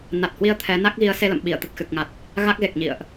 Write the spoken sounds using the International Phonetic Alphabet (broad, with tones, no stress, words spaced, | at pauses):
na˨˩t̚hwi˧ə̯ t̪ʰɛ˨˦na˦˥k̚ ɣi˨˦ə̯se˧lə̰˧˨mɓi˧˩ə̯ t̪ə˨˩t̚xɨ˨˩k̚ŋa˨˩t̚ | ɣa˦˥k̚ɣe˨˩k̚ ɲḭ˧˨ə̯ʔ